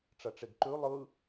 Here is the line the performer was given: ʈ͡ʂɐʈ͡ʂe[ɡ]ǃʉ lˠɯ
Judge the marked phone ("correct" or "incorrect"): correct